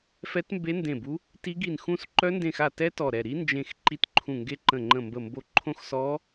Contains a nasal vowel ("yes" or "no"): yes